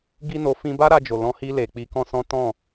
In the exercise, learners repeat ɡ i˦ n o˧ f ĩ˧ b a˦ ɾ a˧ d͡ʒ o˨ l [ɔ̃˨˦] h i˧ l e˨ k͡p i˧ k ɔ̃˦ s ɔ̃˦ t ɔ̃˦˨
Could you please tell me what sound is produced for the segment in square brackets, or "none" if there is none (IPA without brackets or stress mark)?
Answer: ɔ̃˨˦